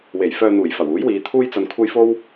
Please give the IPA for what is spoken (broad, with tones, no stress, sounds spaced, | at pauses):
w e˨˩ j f œː˧ n̪ uː˨˩ j f ɐ˨˩ w uː˨˥ j w iː˨˧ t̪ʰ uː˥ j t͡s ɐ˧ n kʷʰ ɐ˥ j f o˥ w